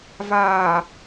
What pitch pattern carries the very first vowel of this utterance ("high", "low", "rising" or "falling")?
low